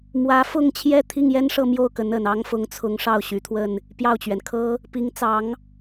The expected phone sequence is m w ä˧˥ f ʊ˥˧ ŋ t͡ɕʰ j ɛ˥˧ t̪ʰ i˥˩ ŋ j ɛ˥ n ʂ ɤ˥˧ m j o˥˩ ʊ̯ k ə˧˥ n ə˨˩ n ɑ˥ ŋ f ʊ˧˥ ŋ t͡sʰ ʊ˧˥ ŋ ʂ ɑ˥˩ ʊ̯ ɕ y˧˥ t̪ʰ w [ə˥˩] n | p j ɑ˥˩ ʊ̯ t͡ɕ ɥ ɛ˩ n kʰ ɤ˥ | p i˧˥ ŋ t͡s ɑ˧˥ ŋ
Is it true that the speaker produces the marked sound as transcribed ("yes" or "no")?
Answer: yes